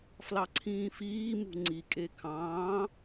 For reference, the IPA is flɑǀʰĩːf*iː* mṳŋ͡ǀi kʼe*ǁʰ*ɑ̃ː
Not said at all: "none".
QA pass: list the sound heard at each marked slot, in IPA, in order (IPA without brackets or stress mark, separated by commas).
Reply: iː, kʰ